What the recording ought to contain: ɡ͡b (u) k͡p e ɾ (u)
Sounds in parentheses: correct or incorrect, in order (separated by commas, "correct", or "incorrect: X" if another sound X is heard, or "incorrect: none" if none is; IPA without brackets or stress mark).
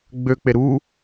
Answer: incorrect: ø, correct